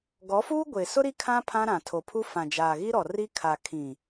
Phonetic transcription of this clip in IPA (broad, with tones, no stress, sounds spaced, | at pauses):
ɡ ɔ˨˦ f uː˦ ɡʷ e˨ s ʊ˦ ɾ i˦ kʰ ã˦ pʰ ã˦ ɾ ã˨ tʰ o˨ pʰ u˦ f ã˨ d͡ʒ aː˨ ɣ i˦ ɾ ɔ˨ r i˦ kʰ a˨ kʰ ĩ˨